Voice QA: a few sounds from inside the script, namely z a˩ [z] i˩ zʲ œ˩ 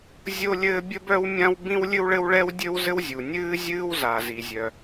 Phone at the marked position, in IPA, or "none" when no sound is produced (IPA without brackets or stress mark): z